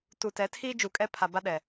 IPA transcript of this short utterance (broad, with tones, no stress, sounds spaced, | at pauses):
t u˨ t ɛ˨˦ tʰ iː˦ d͡ʒ u˨ kʼ ɛ˦ pʰ a˨ b a˦ ɗ ɛ˨